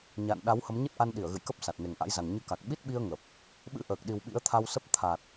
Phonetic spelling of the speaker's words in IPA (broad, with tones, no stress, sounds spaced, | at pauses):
ɲ a̰ː˧˨ n ɗ a˨˦ w h ə˨˦ m ɲ ə˦˥ t̚ ʔ a˧ n ɗ i˧˩ ə̯ ɣ ɨ̰˧˨ j k ə˦˥ p̚ s a˨˩ t̚ n e˨˩ ŋ ʔ a̰˧˥ j z a˨˩ ŋ ɲ ɨ˧ k a˨˩ k̚ ɓ i˦˥ t̚ ɓ i˧ ə̯ ŋ ə˨˩ p̚ | ɓ ɨ̰˧˥ ʔ əː˨˩ k̚ ɗ i˨˩ w ɓ ḭ˧˥ ə̯ t̪ʰ a˧ w s ə˦˥ p̚ t̪ʰ a˨˩ t̚